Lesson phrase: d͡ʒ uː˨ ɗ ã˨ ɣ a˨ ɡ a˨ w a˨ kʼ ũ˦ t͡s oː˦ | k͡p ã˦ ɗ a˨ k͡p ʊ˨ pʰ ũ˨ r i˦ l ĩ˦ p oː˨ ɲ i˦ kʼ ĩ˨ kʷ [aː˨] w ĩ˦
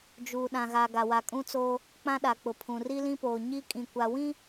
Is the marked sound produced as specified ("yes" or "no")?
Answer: no